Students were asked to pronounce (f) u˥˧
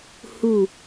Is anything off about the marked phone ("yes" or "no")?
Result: yes